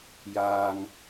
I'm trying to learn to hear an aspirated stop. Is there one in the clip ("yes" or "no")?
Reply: no